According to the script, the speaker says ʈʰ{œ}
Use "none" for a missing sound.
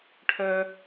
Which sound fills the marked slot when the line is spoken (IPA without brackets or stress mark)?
œ